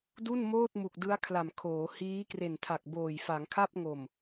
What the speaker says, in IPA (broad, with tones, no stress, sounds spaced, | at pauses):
d u˥˩ n m oː˥˩ t̚ m u˨˩ k̚ d ɯ˦˥ a̯ kʰ l a˨˩ m kʰ oː˩˦ h iː˦˥ k r e˨˩ n tʰ a˨˩ k̚ b oː˨˩ j f a˩˦ ŋ kʰ a˥˩ p̚ ŋ o˨˩ m